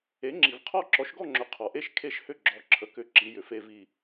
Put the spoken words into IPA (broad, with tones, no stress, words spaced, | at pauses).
e˨˥ŋ͡ǁi˨vqʰɔ˥˧ ǁɔ˨˥ʃɡɔ˥˧ŋ͡ǁʏ˨˥ qʰɔ˨ʔe˥˧ʃ kʰe˥˧ʃhʏ˥˧ ɡ͡ǁɔ˨˥ǁʰə˨ kʏ˥˧ ǁi˨˥jʏ˨fe˥˧vi˥˧